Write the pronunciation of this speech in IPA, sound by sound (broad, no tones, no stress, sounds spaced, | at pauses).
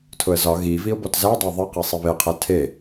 tʰ ʊ ə̯ z ɒ ɣ i v i ʊ̯ b ɔ t z æ dˤ æ ðˤ i q e sˤ i β e qʰ ɛ tʰ e